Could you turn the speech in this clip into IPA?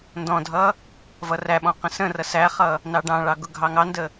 n d ɔ̃ dʱ ʌ | v ʌ r æ ɓ ɔ̃ q ə̃ s ə̃ r ʌ s æ χ ʌ | n ɑ ɖ ɑ̃ ɭ ɑ ɡ ʊ ɡʱ ɑ ŋ ɑ n d ə

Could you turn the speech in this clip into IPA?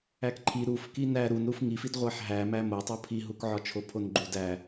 æ k ǃʰ i ɾ u f k i n æ ɾ u n ɾ u f ŋ i f i d ʁʷ æ ħ ɦ æ m æ m o tˤ o pʰ i ɦ u k ʕ ɒ t͡ʃʰ o pʰ o n ɡ͡ǃ u d æ

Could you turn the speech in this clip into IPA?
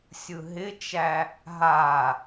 sʲ ɯ ɦ ɪ t͡ʃ æ | ɦ a

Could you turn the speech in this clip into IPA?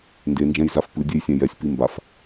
n d e n d͡ʒ ɛ̃ j z a f p ɨ dʲ e j sʲ ɛ̃ j ɛ sʲ p i m b a f

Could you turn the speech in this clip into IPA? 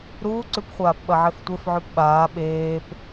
ɾ uː ǀ ʉ p χʷ aː p ɓ ɐ ʕ e f tʷ e f ʕ ʉ p ɓ aː ɓ eː p

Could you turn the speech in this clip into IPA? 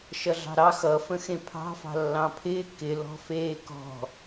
ʃ ʌ ɮ ɑ̤ ɾ ɑ x ʌ f ə̃ x ẽ pʰ ɑ̤ f ɑ̤ lː ɑ̃ pʰ ɪː k ɪ l ɔ̤ f eː k ɔ̤

